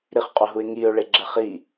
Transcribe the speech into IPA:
ɾ i χ qʼ o ɦ u ɪ̯ ŋ i ʊ̯ ɭ e ɡ͡ǁ ɛ χ i

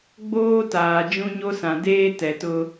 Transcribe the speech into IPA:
ɡ͡b oː˦ t aː˨ d͡ʒ ũ˦ ɲ o˦ s ã˨ d eː˦ t ɛ˨ t ʊ˦

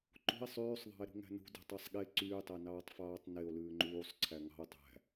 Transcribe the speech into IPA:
ǃ ṳ e̯ sˤ yː sˤ ðˤ ɑ̤ e̯ ɾ ṳ ŋ æ̤ n ṳ d e̤ tˤ ɑ sˤ ɠ e ǀ yː tˤ æ n ɑː tˤ f ɑː tˤ n e o̯ l ʉː ŋ͡ǃ uː sˤ ǀʰ æ ŋ ɑ̤ o̯ tˤ æ̤

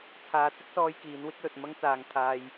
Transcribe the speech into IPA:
t͡sʰ aː˨˧ t͡s ɪ˥ k̚ s ɔː˥ j k iː˨˥ n w ɪ˥ k̚ l ɵ˨ t̚ m ɐ˥ ŋ t͡s aː˨ ŋ t̪ʰ aː˧ j

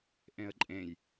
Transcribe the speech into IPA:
ʔ ẽ ə̯ ǃʼ ẽ j

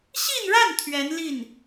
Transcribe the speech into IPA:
ɕ i˥˧ n ɻ a˥˩ n t̪ʰ ɥ ɛ˧˥ n l i˥˩ n

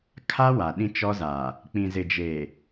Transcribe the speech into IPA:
kʰ a˦ w a˨ ɗ ĩ˦ t͡ʃ ɔ˦ z aː˨ | k͡p ĩ˨ z ɪ˨ d͡ʒ eː˨

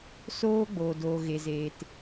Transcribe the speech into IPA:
s oː˦ ɡ͡b oː˨ d oː˨ ɣ e˨ z eː˨ t

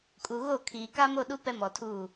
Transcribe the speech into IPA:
kʼ u˨ ɣ o˦˨ kʰ iː˨ k a˦ m o˦˨ ɗ u˦ p ɛ˦ m ɔ˨ tʰ uː˦˨

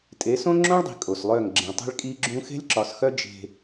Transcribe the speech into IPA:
tʼ e˨˦ s õ˦ ŋ͡ǁ õ˦ ɭ dˤ i̤˨ kʼ o˨ s lˠ œ˦˨ ŋ ɡ͡ǁ ẽ˨ tˤ e̤˦ ɭ kʼ i˦ ɡ͡ǁ ũ˦ x e̤˦ lʲ ǁ ɒ˨ s x œ˦ d͡ʒ e̤˦

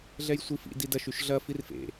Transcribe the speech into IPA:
ɮ ɛ j sʷ i f ḭ d i d ɐ ʃ y ʃ ɮ ɐ f i r f ḛ

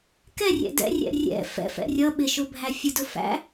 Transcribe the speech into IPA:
k ɛ rʲ ɛ̰ d ɛ̰ rʲ ɛ̰ rʲ ɛ̰ f ɛ̰ f ɛ̰ rʲ ʌ ɓ ɪ ʃ ʊ bʱ æ fʲ ʊ d ʊ f æ̰

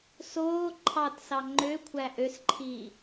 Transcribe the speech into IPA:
s oː ǃʰ ɑ t s ɑ ŋ͡ǃ ø kʷʰ æ ʔ ø s ǃʰ iː

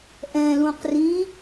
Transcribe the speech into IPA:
ʔ ɛ̃ l ũ q r ĩ

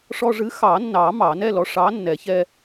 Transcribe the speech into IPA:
ʂ ɔ˧ ʐ ɨ˨˥ x ɑ˨˩˦ nː ɑ˨˩˦ m ɑ˨˩˦ n ɛ˥˧ l ɔ˨˥ ʂ ɑ˨˥ nː ɛ˨˩˦ ç ɛ˧

